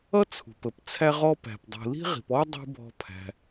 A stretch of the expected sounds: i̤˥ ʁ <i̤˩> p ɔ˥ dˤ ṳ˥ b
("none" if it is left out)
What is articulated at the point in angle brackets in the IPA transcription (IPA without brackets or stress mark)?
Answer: i̤˨